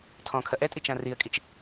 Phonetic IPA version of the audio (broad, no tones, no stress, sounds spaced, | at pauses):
tʰ ɔ̃ kʰ ɐ ʔ ɛ tʼ i t͡ʃ ã r i ə̯ kʼ i t͡ʃ